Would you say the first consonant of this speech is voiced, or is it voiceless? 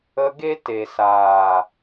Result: voiced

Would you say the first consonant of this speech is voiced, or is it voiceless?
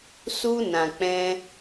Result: voiceless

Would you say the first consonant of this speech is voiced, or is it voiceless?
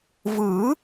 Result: voiced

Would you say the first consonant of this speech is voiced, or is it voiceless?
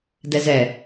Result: voiced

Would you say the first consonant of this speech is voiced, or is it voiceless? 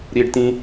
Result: voiced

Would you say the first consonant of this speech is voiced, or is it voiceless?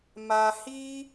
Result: voiced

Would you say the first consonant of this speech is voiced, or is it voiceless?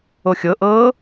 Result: voiceless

